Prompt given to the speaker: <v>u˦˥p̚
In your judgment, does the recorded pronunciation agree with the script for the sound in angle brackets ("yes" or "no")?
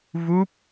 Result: yes